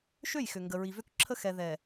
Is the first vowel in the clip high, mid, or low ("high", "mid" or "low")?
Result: mid